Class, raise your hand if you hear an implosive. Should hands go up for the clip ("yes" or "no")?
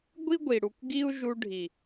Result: no